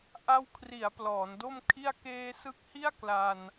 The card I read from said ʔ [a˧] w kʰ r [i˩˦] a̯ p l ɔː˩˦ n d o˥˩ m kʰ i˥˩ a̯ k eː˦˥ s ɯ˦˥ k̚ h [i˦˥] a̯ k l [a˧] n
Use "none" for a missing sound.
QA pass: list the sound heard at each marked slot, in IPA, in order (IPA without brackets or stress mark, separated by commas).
a˧, i˩˦, i˥˩, a˧